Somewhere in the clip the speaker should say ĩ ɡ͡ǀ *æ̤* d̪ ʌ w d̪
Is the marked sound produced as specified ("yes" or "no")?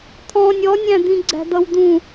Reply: yes